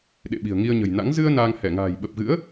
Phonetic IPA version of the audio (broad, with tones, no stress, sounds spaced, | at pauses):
ɗ ḛ˧˨ ɓ i̤˨˩ ə̯ ŋ i˧ ə̯ ɲ ə̤˨˩ j n a̰˧˥ ŋ z ɨ˧ ə̯ n aː˧ ŋ h ɛ˧˩ ŋ a̤ː˨˩ j ɓ ə˨˩ p̚ ɣ ɨ̰˧˥ ə̯